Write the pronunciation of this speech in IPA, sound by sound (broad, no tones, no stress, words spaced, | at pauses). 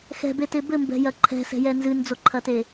xɛ̤bete bɘmbɛ̤jɐ ǃʰɛ̤sɛ̤jɛ nzɨnd͡zoǃʰɐte